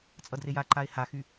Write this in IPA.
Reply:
t͡sʼ ʌ d r e j a ǃ a e̯ h a x y

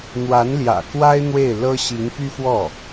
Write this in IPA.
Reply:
n̪ w a˧˥ n l j ä̰˨˩ k w a˥ ɪ̯ n̪ w e˥˩ ɪ̯ l ɤ˥ ɕ i˧˥ ŋ p y˥ f w ɔ˥˩

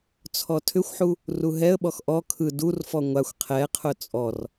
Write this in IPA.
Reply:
t͡sʰ ɔ tʰ ʏ xʷ ħ u | r u ɦ ɛ ə̯ ɓ ɔ x ʔ ɔ kʰ ɯ d u r f ɔ ŋʷ a xʷ qʰ ɛ qʰ ʊ t͡sʼ ɔ r

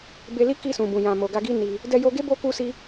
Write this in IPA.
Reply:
b e˧ l i˦ k i˧ s ũ˨ b ũ˨ j ã˨ m o˨ ɡ a˧ ɡ i˦ n i˧ | d ɛ˧ j o˧ ɡ e˦ b o˦ k u˦ s i˦

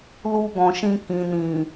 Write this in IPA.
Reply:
l u˧ ɡ ɔ̃˨ ʃ ĩ˧ k ĩ˨ n ĩ˨

